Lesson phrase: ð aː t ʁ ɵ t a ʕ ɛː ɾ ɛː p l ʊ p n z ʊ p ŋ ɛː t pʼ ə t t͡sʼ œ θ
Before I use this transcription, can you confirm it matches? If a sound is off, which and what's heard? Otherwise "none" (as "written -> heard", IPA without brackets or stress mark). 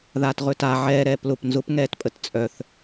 none